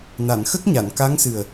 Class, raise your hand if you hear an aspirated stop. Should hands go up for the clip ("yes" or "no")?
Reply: no